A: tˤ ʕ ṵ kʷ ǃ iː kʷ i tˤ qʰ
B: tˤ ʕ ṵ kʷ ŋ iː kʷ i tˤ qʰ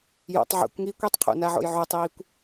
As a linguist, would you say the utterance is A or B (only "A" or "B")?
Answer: B